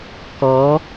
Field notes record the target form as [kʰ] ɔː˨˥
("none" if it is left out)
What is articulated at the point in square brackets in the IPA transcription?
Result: k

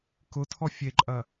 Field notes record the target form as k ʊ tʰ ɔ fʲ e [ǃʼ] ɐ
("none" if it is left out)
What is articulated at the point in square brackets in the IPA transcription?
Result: ǃʼ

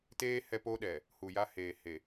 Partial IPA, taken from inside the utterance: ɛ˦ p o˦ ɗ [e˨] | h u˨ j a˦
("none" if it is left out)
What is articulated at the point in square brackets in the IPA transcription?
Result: ɛ˨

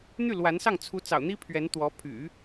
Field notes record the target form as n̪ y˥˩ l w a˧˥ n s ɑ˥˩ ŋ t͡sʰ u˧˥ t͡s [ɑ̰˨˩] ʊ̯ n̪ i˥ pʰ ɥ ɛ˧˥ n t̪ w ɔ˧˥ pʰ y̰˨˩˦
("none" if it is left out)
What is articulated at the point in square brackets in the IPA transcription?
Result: ɑ̰˨˩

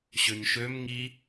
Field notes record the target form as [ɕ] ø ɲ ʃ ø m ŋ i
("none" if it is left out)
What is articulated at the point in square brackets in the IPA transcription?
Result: ɕ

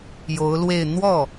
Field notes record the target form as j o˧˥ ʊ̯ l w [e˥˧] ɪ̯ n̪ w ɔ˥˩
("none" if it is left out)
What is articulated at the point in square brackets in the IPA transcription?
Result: e˥˧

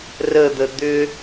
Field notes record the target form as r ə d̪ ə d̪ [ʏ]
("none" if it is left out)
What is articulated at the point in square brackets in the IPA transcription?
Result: ʏ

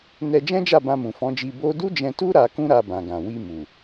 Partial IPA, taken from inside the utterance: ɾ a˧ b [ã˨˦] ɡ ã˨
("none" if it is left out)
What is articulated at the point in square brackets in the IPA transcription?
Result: ã˨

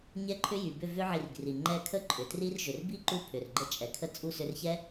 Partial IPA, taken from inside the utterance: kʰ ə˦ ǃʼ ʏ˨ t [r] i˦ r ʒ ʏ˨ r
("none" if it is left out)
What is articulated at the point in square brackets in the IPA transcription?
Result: r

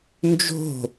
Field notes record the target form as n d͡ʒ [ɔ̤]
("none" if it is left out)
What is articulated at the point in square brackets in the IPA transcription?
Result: o̤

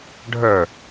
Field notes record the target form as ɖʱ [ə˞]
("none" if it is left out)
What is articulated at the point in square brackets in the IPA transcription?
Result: ə˞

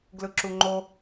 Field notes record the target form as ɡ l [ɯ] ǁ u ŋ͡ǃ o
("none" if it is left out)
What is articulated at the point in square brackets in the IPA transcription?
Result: ɯ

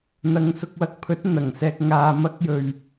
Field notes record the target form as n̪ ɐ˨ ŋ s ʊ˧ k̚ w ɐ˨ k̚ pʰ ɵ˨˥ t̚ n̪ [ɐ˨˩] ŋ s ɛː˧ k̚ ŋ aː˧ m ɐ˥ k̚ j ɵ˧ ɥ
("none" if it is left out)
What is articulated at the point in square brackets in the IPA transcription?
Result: ɐ˨˩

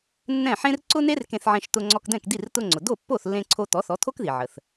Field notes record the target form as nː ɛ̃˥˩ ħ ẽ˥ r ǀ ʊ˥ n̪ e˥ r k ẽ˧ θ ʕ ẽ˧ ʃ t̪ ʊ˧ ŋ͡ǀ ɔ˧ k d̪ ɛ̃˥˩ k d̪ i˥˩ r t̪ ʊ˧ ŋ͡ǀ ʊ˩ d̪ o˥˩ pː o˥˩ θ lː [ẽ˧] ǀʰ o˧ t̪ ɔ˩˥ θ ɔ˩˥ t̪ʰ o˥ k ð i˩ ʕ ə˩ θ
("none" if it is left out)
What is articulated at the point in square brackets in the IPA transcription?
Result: ẽ˧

